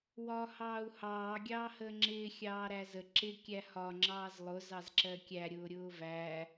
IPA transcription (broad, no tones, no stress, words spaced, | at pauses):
wɒːhɑːu̯hɑː ɡʲɑːhəːŋ͡ǁɪː xʲɑːɾæzə ǁɪ kʲæhɒ ŋ͡ǁɑːzlˠʊ zɑzǁɜkʲæ ɾʲʊːɾʲʊːvæ